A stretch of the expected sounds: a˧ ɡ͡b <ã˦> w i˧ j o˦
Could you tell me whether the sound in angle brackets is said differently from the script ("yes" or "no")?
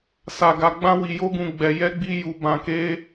no